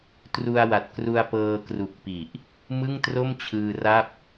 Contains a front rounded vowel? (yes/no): no